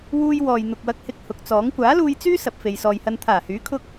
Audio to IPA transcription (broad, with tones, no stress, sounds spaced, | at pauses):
w uː˧ j w ɔː˨ j n̪ ʊ˨ k̚ w ɐ˧ k̚ h ɪ˧ k̚ h ʊ˨˥ k̚ t͡s ɔː˨˥ ŋ kʷ aː˨˥ l uː˧ j t͡s yː˥ s ɐ˨ p̚ f e˨ j s ɔː˨ j h ɐ˧ n t̪ʰ aː˨˩ h yː˨˥ kʰ ʊ˧ k̚